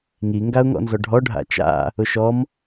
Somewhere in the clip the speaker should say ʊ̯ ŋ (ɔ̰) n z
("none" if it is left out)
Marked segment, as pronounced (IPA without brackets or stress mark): ɔ̰